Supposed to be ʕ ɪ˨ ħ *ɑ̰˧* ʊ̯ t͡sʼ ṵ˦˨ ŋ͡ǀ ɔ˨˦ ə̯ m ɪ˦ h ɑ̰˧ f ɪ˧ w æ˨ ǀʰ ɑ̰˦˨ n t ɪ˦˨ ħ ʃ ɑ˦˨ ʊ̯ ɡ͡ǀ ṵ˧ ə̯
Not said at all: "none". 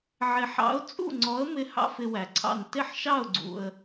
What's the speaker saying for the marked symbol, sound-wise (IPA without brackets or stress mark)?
ɑ̰˨˦